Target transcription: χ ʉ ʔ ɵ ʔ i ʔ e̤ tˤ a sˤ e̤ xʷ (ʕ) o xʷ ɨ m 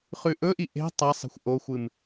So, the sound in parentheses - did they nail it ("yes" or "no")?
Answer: no